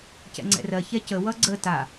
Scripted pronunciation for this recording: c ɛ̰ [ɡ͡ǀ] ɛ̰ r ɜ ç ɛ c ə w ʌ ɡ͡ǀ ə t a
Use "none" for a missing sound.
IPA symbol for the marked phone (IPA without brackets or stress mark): ŋ͡ǀ